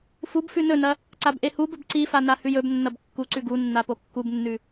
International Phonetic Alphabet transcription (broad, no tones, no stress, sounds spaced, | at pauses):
f u b f ʉ n ɵ n ɐ | ǀ a b ʔ e h u b ɵ b ǀ i f a n a h ʉ j ɵ b nː ɐ b kː u ǀ ʉ ɡ u nː a p o kː u b nː ʉ